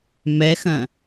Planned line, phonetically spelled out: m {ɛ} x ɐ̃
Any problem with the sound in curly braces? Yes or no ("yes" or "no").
no